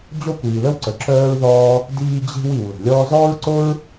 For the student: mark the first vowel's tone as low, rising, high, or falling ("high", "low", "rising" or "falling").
high